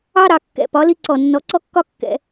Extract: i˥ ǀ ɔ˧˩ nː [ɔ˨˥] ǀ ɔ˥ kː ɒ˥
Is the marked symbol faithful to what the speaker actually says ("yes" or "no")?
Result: yes